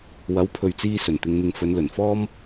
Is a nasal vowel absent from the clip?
yes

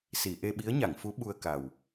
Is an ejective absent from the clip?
yes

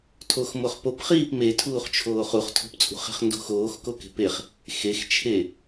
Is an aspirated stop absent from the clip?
no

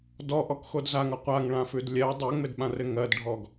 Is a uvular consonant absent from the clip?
no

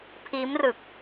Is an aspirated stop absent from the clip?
no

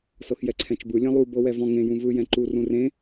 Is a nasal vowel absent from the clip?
no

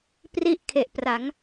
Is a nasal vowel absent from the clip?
yes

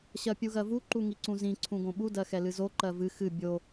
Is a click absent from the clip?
no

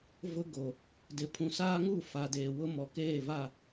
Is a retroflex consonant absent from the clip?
yes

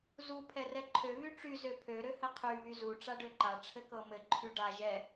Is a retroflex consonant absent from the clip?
no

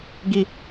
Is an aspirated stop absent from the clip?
yes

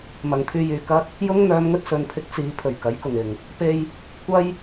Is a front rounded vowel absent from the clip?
no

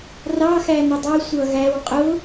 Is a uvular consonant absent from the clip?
no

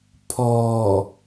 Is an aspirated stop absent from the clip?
no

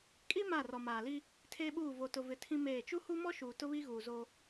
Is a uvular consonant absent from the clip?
yes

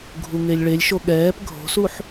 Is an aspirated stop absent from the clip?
yes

